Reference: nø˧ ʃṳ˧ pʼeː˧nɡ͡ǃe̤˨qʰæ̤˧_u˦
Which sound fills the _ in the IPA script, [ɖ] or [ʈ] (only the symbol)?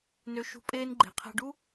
ɖ